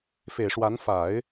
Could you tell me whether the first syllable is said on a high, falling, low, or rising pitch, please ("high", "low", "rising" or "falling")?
low